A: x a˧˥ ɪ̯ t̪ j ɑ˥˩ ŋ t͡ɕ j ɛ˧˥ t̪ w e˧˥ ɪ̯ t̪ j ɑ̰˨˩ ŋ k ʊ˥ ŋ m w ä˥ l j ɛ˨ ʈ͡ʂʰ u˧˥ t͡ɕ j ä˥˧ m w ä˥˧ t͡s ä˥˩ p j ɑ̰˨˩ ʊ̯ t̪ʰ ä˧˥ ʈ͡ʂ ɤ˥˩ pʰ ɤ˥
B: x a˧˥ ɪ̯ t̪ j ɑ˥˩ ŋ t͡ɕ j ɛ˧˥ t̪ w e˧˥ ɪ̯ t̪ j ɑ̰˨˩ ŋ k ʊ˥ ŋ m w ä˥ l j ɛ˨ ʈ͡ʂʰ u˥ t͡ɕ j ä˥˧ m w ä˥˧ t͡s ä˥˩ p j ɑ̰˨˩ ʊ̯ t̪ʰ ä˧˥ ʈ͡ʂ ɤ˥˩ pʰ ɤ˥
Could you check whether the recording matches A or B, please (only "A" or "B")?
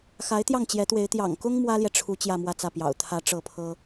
A